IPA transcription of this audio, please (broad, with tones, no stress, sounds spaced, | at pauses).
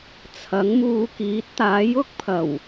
t͡sʰ ɐ˨˥ ŋ m uː˧ k iː˨˥ t̚ t̪ aː˨˥ j ʊ˥ k̚ pʰ ɐ˨˩ w